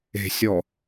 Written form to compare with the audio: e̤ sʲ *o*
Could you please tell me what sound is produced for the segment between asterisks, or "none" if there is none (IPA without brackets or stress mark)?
ɔ